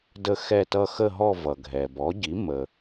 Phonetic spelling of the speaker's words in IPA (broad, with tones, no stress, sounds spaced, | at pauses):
d ə˦˨ x ɛ˦˨ t ʌ˦˨ x ə˦˨ ɦ ɔ˦˨ v ʌ˩ ɡʱ ɛ˩ b ɔ˩˥ ɟ i˩˥ m ə˩